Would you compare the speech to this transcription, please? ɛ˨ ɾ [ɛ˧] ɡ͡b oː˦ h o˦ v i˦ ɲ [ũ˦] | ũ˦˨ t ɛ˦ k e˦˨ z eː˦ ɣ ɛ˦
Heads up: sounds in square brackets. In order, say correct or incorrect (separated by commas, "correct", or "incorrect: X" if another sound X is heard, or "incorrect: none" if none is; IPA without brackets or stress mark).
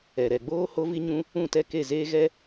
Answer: incorrect: ɛ˨, correct